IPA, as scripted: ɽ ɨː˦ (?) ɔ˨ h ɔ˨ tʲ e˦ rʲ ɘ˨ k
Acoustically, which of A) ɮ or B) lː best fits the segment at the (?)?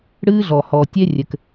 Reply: A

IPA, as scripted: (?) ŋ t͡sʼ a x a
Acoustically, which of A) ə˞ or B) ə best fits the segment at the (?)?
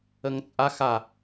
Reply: B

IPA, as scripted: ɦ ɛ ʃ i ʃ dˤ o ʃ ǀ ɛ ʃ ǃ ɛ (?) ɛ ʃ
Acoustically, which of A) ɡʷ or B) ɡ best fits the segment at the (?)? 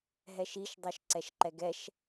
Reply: B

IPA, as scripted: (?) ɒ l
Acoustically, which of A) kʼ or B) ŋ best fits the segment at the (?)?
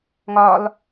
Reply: B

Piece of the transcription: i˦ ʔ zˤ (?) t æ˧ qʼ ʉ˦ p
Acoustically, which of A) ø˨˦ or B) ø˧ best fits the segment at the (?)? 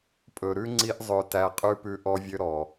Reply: B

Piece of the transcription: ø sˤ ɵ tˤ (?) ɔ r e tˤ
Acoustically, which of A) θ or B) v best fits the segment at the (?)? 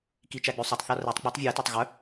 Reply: A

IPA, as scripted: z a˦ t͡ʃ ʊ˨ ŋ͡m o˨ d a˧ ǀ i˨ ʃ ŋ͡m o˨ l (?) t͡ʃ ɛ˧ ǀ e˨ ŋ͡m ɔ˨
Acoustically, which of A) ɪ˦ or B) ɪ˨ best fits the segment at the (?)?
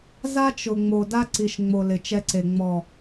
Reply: B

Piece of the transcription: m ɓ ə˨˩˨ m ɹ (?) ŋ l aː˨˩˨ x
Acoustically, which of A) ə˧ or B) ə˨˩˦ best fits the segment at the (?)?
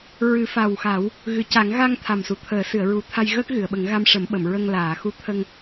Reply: A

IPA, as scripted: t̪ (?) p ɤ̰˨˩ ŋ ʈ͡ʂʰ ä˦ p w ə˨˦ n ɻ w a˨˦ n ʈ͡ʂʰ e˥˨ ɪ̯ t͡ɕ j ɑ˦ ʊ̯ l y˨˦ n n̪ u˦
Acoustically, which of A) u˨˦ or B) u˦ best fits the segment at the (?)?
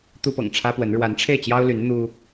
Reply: B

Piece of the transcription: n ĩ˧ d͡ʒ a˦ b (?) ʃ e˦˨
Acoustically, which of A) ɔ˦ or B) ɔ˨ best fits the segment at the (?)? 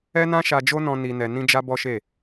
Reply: A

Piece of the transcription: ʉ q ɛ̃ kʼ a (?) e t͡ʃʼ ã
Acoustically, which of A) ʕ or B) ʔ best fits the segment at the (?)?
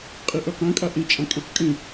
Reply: B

